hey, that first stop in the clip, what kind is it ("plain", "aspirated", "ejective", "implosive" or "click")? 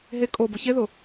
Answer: ejective